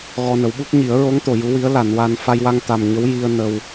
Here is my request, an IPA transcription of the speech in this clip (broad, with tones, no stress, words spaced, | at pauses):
ɣɔ˧nə˨˩˦wɓu˦˥k̚ ɲi˨˩˦ə̯ɹo˧˥ŋt̪o˨˩˨ ju˧˥wi˧˥ə̯ la˨˩˨nwa˧n fa˧jwa˧ŋ t̪a˨˩mɲə˧˥w ji˧ə̯ nə˧w